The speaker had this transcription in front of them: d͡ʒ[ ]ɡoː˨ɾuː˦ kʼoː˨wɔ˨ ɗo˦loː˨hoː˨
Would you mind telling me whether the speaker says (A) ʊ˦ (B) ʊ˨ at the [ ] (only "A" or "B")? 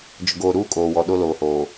B